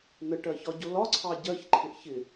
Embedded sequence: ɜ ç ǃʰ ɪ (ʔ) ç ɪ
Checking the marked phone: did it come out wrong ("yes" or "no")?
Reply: no